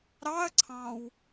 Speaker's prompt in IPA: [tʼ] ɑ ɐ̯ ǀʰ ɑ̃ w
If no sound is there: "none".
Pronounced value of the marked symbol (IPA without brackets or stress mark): ɾ